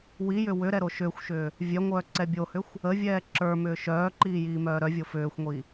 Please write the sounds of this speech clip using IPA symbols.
wijʏ wʏɾɛ ɾoʃʏːxʷʃʏː | vʲœŋʷœː ǀɛbʲohʏxʷ | ə vʲɛːǁə˞mʏː ʃœːǃiː jiːmœːɾœvʲo fʏːxʷŋʷi

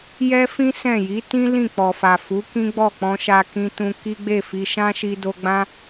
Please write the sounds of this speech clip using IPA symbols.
jɛ˦fĩ˦ sɛ̃˦˨ ji˨˦tĩ˦ lĩ˦˨k͡pɔ˨fa˨ fu˨˦ kĩ˦ɡ͡bɔ˦˨k͡pɔ̃˧ ʃa˧kĩ˧tũ˧ ki˦ɡ͡be˦˨fi˧ ʃã˦ʃi˧do˧ ɡ͡bã˦

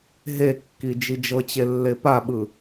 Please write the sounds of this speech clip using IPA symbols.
ɦekːi d͡ʒid͡ʒɤt͡ɕe lːepaɓɯ

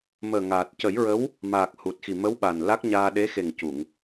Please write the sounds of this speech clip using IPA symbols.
məː˨˩ŋaː˨˩t̚cə˨˩˦jɹə˧˥w | maː˨˩k̚ hu˨˩t̚xi˨˩mə˧˥w ɓa˨˩nla˦˥k̚ɲaː˧ ɗe˧˥xe˨˩ŋ cu˨˩˨ŋ

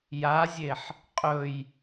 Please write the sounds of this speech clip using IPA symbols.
jazʲeħ | qʼɵj

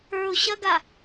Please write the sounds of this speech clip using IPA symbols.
ə˞ʊ̯ ɕɐɡa

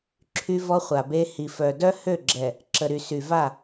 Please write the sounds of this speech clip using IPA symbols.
ǁʰy˦ vɔ˦χʷa˨be˦ hi˨fœ˨ dœ˦hø˦˨ɡ͡ǁɛ˨ | ǁə˨ɾy˨ sy˨va˦˨

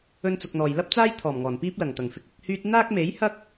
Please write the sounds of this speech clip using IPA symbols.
ɵ˥nt͡sʊ˧k̚n̪ɔː˨j lɐ˥p̚t͡saː˥jt̪ʰɔː˨˩m ŋɔː˨˩npiː˥p̚lɐ˨˩ŋt̪ɐ˨˩ŋ fɪ˧k̚ɪ˨˥k̚hyː˥t̚ n̪aː˥k̚me˨˥jhɐ˥k̚

